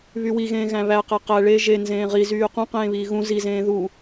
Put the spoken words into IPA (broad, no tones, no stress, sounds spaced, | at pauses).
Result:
β y w i ɣ ẽː ɣ æ̃ β æ q æ q æ ɭ e ʒ e n z ẽː ʁ i z yː q ũ q ẽː β iː ɣ ũ z i z ẽː ð u